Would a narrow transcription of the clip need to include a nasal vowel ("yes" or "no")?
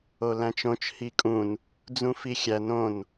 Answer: yes